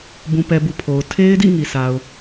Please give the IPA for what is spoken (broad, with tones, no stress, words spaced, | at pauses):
bũ˨pɛ˨bu˨ pʰo˨ʊ̯ tʰe˦ɪ̯dḭ˦˨ ŋi˨sʰa˨ʊ̯